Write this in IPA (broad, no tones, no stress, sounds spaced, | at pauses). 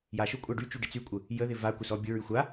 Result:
j a ʃ ʊ kʷʼ a ɖ y t͡ʃ y ɖ ɪ t͡s y kʷʼ ə | j ə ð ɪ v a kʷ ɪ s ɔ bʲ ʊ ɹ y xʷ a